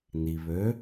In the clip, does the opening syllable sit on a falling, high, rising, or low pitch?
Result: low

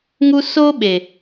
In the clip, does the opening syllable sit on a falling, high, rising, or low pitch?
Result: high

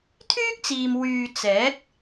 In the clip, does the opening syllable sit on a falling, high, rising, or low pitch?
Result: high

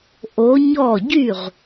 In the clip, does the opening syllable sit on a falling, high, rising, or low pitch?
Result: rising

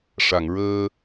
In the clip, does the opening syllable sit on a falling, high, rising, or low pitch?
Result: low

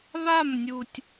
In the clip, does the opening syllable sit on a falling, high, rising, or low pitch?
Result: falling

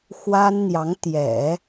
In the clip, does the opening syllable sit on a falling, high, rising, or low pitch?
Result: high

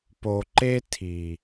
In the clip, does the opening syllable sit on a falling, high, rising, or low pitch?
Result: low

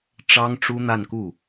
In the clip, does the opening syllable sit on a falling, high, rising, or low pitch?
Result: high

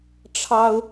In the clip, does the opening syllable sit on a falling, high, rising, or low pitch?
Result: high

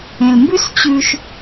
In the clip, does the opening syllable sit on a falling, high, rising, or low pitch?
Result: low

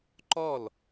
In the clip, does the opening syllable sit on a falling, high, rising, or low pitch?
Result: falling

